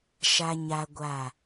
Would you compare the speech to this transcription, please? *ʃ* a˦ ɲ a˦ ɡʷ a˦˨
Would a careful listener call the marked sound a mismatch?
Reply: no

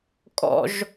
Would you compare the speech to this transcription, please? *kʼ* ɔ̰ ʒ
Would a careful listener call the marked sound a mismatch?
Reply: no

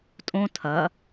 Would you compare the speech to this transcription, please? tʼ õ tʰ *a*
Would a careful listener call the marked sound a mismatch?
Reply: yes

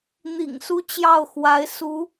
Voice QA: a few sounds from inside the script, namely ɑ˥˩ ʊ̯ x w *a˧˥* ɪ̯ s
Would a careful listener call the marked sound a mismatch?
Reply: no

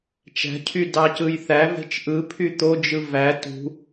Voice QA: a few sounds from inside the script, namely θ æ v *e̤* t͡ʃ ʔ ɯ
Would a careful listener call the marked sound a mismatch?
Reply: no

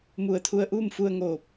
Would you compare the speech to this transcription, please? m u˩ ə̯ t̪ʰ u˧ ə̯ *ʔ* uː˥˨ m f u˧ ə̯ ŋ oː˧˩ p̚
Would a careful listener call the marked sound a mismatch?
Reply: no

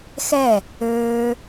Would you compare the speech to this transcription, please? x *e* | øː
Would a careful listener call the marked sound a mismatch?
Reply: yes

